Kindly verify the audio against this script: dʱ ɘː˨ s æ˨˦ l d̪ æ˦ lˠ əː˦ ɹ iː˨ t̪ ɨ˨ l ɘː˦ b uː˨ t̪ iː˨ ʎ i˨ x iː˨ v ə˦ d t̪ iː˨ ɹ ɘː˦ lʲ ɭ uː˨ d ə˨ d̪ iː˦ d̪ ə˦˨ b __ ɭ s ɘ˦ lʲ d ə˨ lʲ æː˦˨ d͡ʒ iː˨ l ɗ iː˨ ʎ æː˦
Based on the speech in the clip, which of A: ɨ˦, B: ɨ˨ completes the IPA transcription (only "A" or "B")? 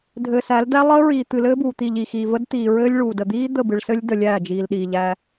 B